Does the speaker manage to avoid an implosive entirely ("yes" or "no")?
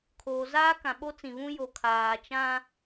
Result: no